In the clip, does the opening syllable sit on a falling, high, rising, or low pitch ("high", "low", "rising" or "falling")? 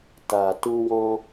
low